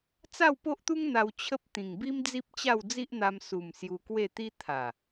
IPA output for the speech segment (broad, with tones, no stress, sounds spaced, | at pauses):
t͡s a˥˧ w p o˦ ʔ t̪ u˦ ŋ n̪ a˧ w t͡ɕʰ ə˦ p̚ t̪ ĩ˨˩ ŋ b i˦ m d͡z i˦ p̚ t͡ɕ a˥˧ w d͡z i˦ ʔ n̪ a˧ m s u˨˩ m s j u˧ k w e˥˧ t̪ i˦ t̪ʰ a˨˩